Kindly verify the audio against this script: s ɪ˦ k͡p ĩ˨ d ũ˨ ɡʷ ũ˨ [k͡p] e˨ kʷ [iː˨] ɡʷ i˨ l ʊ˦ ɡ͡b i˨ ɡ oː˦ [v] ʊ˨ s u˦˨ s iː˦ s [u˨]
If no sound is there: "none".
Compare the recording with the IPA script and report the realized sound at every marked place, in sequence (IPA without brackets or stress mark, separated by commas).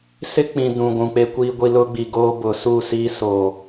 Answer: k͡p, iː˨, b, o˨